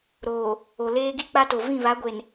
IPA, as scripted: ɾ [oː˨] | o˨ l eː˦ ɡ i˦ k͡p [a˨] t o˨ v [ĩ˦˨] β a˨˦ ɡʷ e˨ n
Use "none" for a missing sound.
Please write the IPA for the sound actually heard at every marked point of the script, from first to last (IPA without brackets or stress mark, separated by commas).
oː˨, a˦, ĩ˦˨